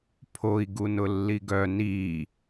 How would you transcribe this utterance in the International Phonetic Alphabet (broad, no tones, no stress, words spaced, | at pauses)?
pʰoi̯ ɡunʊlːiɡœ ni